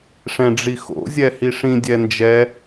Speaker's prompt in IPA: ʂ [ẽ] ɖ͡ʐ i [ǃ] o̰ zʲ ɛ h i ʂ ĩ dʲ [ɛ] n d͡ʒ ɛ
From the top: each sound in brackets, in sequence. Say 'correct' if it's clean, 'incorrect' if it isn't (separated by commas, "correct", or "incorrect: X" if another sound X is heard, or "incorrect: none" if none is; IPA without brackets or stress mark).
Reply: incorrect: ɛ̃, incorrect: x, correct